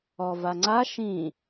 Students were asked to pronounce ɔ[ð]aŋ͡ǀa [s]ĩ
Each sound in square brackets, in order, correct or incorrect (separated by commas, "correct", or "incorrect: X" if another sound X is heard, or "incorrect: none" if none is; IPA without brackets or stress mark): incorrect: v, incorrect: ʃ